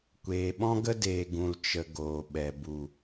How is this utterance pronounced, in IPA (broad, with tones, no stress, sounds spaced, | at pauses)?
kʷ eː˨ ɓ ɔ̃˦ ɡ ə˦ d eː˨ ɡ ũ˨ l t͡ʃ ə˨ ɡ oː˨ ɓ ɛ˨ b u˨